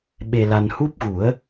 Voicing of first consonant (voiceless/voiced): voiced